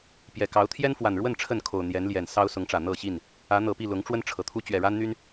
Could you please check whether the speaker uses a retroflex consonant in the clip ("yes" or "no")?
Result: yes